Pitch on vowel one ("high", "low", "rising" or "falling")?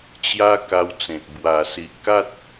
high